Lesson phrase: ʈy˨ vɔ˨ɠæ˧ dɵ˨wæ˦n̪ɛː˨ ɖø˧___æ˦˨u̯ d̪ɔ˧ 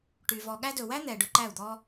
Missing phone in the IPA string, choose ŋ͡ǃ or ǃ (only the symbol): ǃ